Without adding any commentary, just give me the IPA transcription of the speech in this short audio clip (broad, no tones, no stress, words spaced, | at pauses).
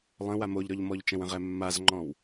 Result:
lˠə̃ wamoʎɾɔʎmɔʎ t͡ʃə̃wə̃ʁɛ mːazŋ͡ǃɔ̃w